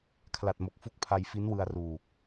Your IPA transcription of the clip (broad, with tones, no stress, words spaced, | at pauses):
kʰla˨˩t̚mo˨˩k̚ fu˦˥k̚pʰa˧jfi˦˥nwɯ˧a̯ ruː˨˩k̚